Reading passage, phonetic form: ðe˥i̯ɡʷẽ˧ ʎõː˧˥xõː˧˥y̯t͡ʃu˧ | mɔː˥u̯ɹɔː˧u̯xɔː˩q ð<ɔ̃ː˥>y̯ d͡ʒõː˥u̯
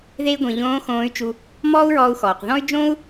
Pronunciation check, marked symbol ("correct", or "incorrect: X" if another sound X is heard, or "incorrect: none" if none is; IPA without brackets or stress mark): incorrect: ɔ̃˥